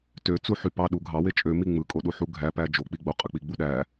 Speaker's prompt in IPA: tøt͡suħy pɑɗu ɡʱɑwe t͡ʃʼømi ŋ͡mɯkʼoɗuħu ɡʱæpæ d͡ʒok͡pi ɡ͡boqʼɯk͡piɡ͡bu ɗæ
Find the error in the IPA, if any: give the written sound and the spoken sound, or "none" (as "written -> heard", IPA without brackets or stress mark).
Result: none